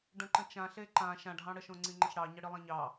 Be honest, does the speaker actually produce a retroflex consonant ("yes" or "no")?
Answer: yes